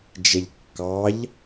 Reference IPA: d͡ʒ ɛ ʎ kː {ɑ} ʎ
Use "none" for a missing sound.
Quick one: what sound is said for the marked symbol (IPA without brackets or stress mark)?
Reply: ɑ